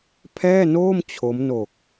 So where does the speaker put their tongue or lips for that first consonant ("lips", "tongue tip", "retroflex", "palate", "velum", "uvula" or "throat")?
lips